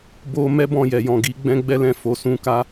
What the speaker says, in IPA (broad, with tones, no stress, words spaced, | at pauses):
bo˦ mɛ˦bɔ̃˦˨jɛ˨jɔ̃˨ ɡi˨˦ ɡ͡bɛ̃˦ɡ͡bɛ˦lɛ̃˦˨ fo˨sũ˨˦ka˧